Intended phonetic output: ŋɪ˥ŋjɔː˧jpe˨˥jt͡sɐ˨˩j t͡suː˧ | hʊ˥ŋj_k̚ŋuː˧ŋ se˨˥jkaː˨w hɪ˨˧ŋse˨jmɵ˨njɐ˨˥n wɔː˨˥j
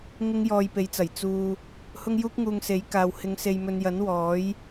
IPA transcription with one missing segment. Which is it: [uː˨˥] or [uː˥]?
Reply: uː˥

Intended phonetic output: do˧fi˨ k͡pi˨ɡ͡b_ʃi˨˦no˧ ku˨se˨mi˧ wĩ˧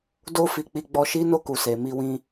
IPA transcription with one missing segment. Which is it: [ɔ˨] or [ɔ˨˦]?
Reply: ɔ˨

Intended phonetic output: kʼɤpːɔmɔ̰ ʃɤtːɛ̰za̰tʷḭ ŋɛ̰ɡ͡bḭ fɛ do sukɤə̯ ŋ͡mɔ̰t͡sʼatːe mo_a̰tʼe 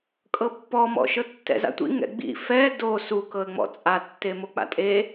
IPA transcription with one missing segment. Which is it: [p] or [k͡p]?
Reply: k͡p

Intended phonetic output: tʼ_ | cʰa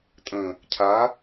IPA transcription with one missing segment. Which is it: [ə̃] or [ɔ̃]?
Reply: ə̃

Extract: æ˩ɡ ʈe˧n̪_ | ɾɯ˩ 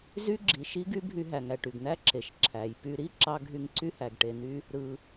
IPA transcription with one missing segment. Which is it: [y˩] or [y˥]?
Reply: y˥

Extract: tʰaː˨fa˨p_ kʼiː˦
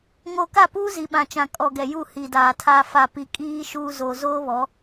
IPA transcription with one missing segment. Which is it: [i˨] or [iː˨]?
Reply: i˨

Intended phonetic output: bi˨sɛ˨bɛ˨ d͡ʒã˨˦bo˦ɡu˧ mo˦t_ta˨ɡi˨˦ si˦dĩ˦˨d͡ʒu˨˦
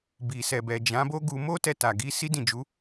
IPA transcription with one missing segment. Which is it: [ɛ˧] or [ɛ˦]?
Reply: ɛ˧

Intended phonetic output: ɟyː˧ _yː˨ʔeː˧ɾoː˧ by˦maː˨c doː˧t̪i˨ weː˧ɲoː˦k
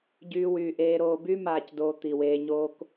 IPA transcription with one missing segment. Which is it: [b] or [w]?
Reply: w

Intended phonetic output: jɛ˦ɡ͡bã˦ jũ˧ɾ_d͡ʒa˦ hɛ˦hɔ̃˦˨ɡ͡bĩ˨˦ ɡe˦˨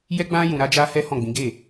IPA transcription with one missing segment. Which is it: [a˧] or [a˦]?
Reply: a˦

